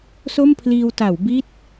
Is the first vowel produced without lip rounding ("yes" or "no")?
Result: no